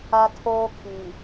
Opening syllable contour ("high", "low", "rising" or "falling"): high